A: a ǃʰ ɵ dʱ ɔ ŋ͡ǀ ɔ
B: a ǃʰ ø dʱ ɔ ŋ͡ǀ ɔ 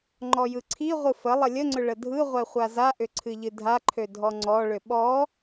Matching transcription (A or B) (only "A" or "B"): B